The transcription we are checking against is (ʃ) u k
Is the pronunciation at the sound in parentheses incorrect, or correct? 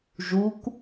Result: incorrect